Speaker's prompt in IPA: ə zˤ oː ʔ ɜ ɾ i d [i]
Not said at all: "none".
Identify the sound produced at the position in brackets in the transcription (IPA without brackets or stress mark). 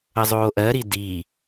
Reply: i